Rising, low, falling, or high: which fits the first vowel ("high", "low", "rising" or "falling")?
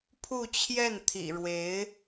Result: falling